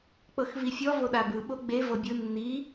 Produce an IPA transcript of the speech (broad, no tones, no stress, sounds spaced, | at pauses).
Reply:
k͡p ɤ x v i fʲ ɔ v o ɗ a b ɯ ɓ o ɡ͡b e v ɤ bʲ ɯ nː i